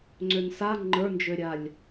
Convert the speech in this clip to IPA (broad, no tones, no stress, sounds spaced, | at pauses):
ŋ͡ǀ ø n s a ŋ͡ǃ ə˞ n d͡ʒ ø ɾʲ a lʲ